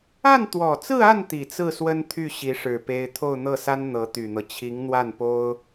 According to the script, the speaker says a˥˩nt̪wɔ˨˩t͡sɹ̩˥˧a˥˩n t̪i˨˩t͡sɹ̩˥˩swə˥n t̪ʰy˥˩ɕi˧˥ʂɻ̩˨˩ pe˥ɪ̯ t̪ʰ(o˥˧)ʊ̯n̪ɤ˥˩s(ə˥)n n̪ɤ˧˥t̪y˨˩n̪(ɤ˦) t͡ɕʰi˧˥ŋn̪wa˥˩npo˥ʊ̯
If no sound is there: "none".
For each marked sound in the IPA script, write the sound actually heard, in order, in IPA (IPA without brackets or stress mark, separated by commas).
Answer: o˥˧, a˥, ɤ˦